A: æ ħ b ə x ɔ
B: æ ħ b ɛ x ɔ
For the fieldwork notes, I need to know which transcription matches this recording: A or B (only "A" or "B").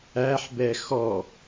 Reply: B